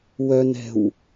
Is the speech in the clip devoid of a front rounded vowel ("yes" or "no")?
no